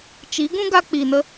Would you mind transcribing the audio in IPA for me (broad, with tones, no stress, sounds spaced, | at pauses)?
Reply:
t͡ʃ i˨˦ ɡ ũ˦ ɡ a˧ k͡p i˨ n ə˧